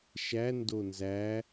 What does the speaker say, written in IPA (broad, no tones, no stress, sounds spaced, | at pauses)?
ʃ æ n d o n z æ